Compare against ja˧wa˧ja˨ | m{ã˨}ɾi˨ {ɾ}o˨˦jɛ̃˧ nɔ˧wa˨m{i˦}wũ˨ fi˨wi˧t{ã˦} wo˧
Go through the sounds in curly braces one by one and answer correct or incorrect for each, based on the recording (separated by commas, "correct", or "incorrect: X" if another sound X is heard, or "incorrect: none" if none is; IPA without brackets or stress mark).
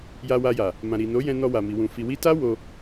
correct, incorrect: n, incorrect: i˨, incorrect: a˦